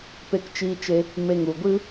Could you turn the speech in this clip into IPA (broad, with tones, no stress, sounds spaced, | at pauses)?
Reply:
p e˧ k t͡ʃ iː˧ t͡ʃ e˧ | m e˧ ŋ u˨ ɡʷ ɨ˦